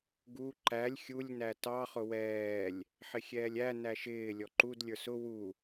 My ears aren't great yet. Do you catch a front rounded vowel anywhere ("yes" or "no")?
no